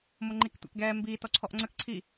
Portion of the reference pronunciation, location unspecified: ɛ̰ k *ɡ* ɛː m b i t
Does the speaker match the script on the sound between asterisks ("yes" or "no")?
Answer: yes